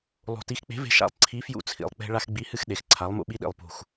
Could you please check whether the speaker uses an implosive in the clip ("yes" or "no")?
yes